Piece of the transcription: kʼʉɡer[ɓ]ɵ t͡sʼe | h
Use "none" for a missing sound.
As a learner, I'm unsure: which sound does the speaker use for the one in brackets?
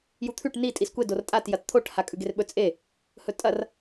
ɓ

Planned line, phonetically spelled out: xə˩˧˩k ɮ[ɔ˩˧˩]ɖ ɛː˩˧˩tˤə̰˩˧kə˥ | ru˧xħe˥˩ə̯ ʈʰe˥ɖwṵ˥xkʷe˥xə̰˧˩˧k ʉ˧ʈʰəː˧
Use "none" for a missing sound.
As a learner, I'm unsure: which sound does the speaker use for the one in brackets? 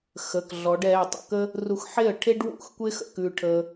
ɔ˩˧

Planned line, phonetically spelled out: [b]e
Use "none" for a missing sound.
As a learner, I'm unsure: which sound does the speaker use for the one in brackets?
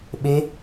ɓ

